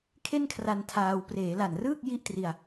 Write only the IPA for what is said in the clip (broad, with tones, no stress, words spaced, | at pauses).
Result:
kʰe˥˩nkʰra˧n tʰaː˧w preː˩˦la˨˩nrɯː˥˩k̚ ji˥˩ʔtri˧a̯